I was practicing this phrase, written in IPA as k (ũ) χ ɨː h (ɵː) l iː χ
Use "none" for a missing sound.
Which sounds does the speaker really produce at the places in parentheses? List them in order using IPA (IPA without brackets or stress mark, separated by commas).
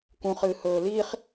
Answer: ũ, ɵː